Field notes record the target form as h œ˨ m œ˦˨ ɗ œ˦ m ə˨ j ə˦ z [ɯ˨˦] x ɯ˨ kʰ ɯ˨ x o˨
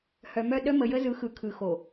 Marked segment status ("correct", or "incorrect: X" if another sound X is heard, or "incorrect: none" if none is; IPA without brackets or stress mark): correct